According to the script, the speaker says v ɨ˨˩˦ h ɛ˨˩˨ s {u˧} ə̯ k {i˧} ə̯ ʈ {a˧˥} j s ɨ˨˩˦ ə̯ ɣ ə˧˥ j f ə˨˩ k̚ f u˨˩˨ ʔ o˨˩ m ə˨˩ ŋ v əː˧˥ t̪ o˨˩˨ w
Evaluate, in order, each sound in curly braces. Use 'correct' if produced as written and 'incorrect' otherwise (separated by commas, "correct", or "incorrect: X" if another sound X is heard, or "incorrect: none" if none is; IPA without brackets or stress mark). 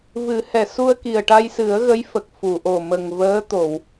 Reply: correct, incorrect: i˨˩, incorrect: a˧